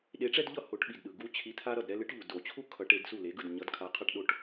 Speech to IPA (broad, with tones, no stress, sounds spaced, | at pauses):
ɗ e˨˥ ʈ͡ʂ ɛ˦ d ʎ ʌ˥˩ h o˨˩˦ ʈ ɓ i˩ d ɗ ɯ˩ ɡ u˦ t͡ɕʰ i˨˥ t̪ʰ a˦ ɾ ʌ˥˩ d ɾ ɛ˦ l ɯ˨˥ ʈ ʎ u˩ d o˨˩˦ t͡ɕʰ u˦ kʰ ʌ˨˩˦ ʈ e˨˩˦ d s u˥˩ l e˨˥ ɡ ɯ˥˩ d ɲ ʌ˨˥ d kʰ a˨˥ qʰ a˦ ʈ ɗ o˦ ʈ